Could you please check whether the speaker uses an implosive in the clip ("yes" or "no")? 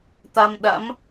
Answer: yes